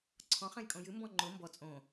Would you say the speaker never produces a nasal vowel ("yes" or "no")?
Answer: no